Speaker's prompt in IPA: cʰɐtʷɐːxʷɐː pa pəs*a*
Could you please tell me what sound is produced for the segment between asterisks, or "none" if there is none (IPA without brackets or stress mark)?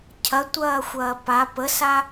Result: a